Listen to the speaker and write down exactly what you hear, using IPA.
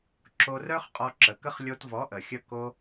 ǁo˧rœ˦χ qʼɔ˧ǁə˨kə˦χ lʲo˧tvɔ˨˦ʔə˨ xʲə˧ ko˦

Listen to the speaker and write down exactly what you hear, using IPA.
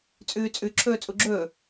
t͡sʼʉːt͡sʼʉ ǁʰɵːt͡sʼuɡ͡ǁɵː

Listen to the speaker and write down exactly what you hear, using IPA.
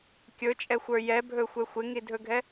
kʲɵt͡ʃʼɛxʷə˞ jɛbʱɵxʷɛ xʷɪŋidʱɵɡʱɛ

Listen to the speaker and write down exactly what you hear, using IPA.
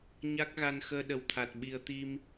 ɲa˦˥k̚ɣa˧n xəː˧ɗə˨˩wt̪ʰa˨˩t̚ ɓi˨˩ə̯t̪i˧m

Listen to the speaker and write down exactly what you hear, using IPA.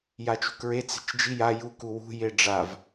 jat͡ʃṳkɹe t͡se̤t͡ʃd͡ʒi ja juk uwṳ jeɖ͡ʐav

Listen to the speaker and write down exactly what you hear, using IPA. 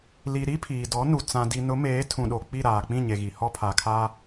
li˨ ɾi˦pʰiː˨dɔ˨˦nu˨ t͡sã˨di˨nʊ˨˦meː˨˦ tʰũ˨ɗo˨k͡pi˦˨ ɾaː˨k͡pĩ˦˨ɲe˨ɣi˨ hɔ˦pʰa˨kʰaː˦

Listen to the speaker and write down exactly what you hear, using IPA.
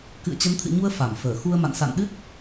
kɨ̰˧˨ə̯t͡ɕə˨˦nt̪ʰɨ̰˧˨ɲu˧ə̯ fa˧˩mfəː˧˩ xu˧ə̯ma̰˧˨n sa̰˧˨nɗɨ˦˥t̚

